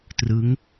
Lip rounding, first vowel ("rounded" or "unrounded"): unrounded